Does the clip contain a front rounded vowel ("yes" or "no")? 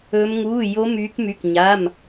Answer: yes